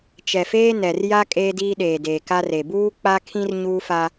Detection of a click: absent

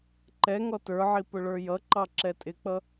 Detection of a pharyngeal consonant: present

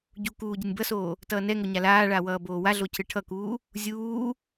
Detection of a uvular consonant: absent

